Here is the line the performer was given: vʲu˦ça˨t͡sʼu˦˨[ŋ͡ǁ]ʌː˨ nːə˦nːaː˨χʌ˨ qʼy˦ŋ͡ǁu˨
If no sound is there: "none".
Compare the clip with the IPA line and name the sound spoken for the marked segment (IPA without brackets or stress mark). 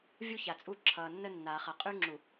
ǁʰ